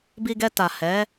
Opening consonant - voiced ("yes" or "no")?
yes